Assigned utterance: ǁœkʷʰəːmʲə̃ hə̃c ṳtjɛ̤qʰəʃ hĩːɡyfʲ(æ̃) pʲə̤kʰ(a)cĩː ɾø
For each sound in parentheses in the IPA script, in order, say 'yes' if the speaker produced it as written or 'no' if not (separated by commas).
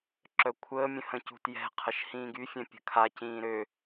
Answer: no, yes